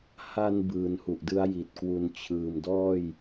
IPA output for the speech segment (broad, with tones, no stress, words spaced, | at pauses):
ha˧n bɯː˩˦nhu˨˩ʔdɯ˦˥a̯ ji˨˩t̚kwu˧n t͡ɕʰɯː˨˩mdɔː˥˩j